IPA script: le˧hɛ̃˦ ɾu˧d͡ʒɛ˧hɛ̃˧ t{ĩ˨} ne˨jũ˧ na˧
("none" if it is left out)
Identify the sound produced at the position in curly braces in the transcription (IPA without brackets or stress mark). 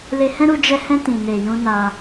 ĩ˨